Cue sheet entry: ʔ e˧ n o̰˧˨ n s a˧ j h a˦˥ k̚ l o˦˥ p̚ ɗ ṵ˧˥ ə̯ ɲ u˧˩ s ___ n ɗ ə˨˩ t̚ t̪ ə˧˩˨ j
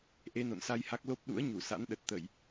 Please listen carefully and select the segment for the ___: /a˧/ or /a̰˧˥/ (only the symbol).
a̰˧˥